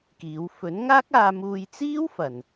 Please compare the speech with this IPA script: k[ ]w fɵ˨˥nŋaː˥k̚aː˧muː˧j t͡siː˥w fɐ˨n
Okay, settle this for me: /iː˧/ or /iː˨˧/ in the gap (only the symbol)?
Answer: iː˨˧